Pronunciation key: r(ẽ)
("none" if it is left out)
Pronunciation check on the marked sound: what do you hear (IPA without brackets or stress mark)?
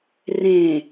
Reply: ẽ